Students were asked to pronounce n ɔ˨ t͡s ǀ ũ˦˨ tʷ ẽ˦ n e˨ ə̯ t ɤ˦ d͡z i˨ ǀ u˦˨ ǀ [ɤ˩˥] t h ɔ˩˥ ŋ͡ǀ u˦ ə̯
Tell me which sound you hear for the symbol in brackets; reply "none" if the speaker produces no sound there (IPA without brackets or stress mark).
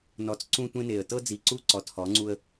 ɔ˩˥